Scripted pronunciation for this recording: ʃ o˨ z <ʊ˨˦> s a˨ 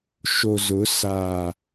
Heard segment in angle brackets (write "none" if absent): ʊ˨˦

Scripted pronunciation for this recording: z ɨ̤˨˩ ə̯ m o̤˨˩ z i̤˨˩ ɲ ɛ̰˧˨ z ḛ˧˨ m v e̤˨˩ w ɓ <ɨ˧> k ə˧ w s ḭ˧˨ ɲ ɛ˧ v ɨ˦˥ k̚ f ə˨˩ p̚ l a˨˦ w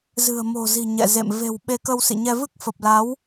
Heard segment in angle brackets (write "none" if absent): e˧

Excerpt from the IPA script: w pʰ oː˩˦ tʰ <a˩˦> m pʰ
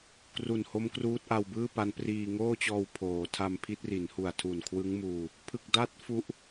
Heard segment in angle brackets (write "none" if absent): a˧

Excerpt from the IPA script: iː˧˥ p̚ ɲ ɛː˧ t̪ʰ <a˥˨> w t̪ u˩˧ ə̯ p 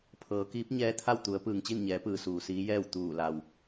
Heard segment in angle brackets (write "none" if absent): a˥˨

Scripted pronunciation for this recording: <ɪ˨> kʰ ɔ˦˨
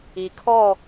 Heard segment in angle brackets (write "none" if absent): i˨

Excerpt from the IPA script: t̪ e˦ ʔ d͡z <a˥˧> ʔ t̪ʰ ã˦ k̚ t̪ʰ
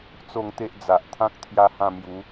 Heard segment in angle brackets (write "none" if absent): a˨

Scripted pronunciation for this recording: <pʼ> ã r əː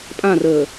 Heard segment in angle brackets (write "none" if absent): pʼ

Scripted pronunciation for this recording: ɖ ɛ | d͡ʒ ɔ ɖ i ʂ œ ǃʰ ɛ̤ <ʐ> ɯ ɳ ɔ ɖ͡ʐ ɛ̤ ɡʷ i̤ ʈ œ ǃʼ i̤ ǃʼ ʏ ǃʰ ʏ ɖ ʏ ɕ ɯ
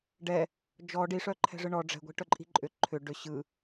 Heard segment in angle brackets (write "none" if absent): ʐ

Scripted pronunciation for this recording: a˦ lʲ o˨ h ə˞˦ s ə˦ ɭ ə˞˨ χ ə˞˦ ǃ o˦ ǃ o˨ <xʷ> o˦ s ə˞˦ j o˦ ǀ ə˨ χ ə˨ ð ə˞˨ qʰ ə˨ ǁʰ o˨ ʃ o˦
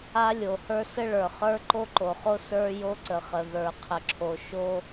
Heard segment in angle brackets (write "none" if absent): χ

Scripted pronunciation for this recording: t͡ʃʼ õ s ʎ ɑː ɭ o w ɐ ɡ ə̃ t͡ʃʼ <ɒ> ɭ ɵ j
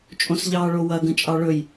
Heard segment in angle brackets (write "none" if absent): ɑ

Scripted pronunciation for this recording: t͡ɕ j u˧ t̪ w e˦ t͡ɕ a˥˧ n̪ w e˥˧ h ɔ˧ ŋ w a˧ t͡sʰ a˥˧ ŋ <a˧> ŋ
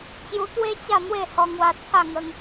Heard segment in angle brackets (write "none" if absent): ə˧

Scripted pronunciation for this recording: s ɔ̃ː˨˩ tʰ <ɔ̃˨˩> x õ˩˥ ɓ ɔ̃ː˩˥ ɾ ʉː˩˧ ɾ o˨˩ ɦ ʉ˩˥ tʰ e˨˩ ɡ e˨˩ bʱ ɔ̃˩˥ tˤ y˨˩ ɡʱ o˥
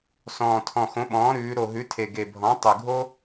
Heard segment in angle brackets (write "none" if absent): ɔ̃˨˩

